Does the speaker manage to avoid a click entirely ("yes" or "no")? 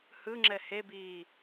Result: no